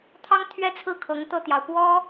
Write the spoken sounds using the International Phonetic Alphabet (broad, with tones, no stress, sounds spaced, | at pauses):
t̪ʰ ɑ˥ ŋ t̪ʰ ɥ ɛ˥˧ t͡sʰ ɹ̩˥˩ kʰ ɤ˧˥ ŋ t̪ ɤ˥˩ t̪ j ɑ˩ ʊ̯ p w ɔ˥